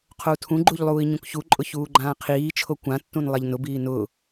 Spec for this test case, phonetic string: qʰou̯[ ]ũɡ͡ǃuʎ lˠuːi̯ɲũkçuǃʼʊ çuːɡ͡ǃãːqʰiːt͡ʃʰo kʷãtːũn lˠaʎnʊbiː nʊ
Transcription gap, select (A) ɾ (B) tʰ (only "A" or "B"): B